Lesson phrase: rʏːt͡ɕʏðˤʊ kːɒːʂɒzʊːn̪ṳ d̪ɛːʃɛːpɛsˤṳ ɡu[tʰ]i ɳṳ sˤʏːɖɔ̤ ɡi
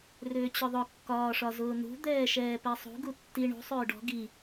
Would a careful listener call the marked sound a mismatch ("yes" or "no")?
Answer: yes